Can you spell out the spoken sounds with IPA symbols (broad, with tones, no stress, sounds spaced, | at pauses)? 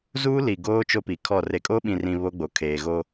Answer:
z uː˦ l i˨ ɡ oː˦ t͡ʃ o˦ p i˨ kʰ ɔ˦˨ r e˨ kʼ o˦ ɓ ĩ˨ r ĩ˨ β o˦ ɡ͡b o˨ kʰ eː˨ ɣ o˦